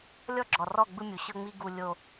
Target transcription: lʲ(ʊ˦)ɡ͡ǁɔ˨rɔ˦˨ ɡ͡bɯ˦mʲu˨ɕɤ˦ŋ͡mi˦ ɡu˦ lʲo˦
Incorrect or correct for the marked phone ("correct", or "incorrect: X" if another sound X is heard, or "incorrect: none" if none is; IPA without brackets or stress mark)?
incorrect: ɔ˦